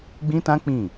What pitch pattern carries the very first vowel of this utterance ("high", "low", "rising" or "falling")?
high